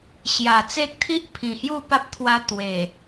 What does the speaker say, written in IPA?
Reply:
ɕ j a˨˩ t͡s e˦ k̚ t̪ʰ i˦ ʔ pʰ ĩ˨˩ h j u˥˧ p a˦ p̚ t̪ʰ w a˧ t̪ w e˨˩

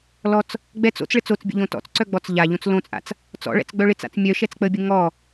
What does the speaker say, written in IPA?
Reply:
l ɔ t͡s | ɡ͡b ɛ t͡s o̰ t͡s ɭ ɪ t͡s o t͡s bʲ ə̰ ʎ õ t ɔ̰ t͡s ǀ œ ɡ͡b ɔ t͡s ʎ a ʎ õ t͡s l õ t͡sʼ a̰ t͡s | t͡s ɔ̰ ɭ ɛ̰ t͡s ɡ͡b œ ɭ ɪ t͡s a̰ t͡s mʲ œ ʃ ɛ t͡s k͡p ə bʲ ə ŋ ɔ

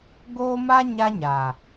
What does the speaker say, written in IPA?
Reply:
ɡ oː˦ m a˦ ɲ a˦ ɲ a˨

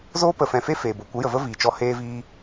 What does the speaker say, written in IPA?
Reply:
z oː˦ p ə˨ f ɛ̃˨ f e˦ f eː˨ b o˨ kʷ ə˨˦ j ə˨ v ə˦ v iː˨ t͡ʃ ɔ˧ h eː˧ v iː˧

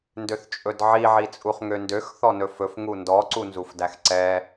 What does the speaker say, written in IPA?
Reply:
n d ø θ t͡ʃʼ ɵ d ʕ i ʕ i t͡sʼ u χ ŋ ø n d ø x θ ɔ n ɵ f ɵ f ŋ u n d ɔ ǀ u n z u f d æ x ǀ ɛ

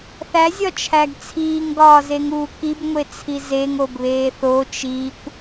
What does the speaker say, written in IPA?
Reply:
θ æ zʲ ɒ t͡ʃʰ æ ɡ t͡sʰ iː ŋ ɡ ɒː z e ŋ uː k i b ŋʷ e t͡sʰ i z e ŋ o b β eː θ o t͡ʃ iː kʷ

